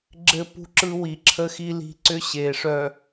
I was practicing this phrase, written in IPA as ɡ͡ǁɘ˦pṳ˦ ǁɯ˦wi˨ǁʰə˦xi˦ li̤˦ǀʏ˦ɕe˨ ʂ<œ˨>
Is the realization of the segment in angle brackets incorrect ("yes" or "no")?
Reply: no